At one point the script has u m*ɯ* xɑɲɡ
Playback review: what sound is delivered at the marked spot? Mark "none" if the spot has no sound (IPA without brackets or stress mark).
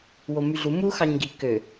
u